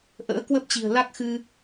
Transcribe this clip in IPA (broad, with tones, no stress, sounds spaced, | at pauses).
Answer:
ʔ ə̰ː˧˥ k w ə˦˥ p̚ t͡ɕ i̤˨˩ ə̯ l a˦˥ k̚ x ɨ˧